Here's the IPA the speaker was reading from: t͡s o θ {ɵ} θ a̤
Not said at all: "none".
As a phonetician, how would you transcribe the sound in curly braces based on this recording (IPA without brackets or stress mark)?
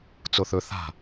ɵ